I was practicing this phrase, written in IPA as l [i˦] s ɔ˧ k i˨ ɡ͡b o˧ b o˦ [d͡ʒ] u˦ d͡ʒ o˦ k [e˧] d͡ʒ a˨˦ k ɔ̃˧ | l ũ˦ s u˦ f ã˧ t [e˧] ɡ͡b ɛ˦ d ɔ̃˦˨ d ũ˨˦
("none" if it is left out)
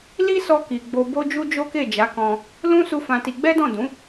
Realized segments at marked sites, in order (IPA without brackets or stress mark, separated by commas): i˦, d͡ʒ, e˦˨, i˧